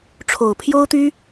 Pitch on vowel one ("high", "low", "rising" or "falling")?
low